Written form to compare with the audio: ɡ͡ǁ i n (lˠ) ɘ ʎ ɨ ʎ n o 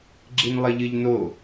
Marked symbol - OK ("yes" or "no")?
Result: yes